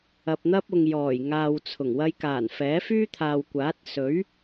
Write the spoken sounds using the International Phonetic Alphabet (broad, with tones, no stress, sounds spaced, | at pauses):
ɐ˨ p̚ n̪ ɐ˥ p̚ ʊ˨ ŋ j ɔː˨˩ j ŋ aː˨ w t͡sʰ ʊ˨˩ ŋ w ɐ˧ j k aː˨˩ n f ɛː˨˥ f yː˥ t̪ʰ aː˨ w kʷ aː˨˥ t̚ s ɵ˨˥ ɥ